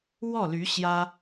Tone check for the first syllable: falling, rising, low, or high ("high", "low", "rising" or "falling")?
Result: falling